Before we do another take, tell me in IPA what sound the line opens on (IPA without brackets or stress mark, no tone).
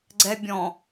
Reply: ɡ͡ǀ